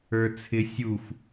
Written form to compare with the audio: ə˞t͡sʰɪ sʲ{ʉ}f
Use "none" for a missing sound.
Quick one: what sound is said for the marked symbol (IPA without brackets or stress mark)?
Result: u